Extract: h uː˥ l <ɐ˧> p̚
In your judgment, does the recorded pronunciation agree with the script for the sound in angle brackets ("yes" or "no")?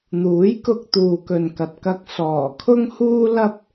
no